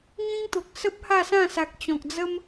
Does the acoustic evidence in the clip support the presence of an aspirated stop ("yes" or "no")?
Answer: no